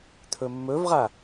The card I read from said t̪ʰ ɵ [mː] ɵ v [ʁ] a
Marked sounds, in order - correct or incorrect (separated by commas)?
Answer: correct, correct